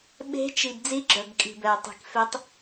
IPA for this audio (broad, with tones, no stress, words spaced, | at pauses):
ɓe̤˧˥t͡ʃi˨b d͡zi˧˥ɡ͡ǁœ˨bkʼi̤˨ bɛ˨ə̯ tˤi̤˨kfe˧˥tˤ